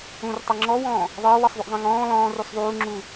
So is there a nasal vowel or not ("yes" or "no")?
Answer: yes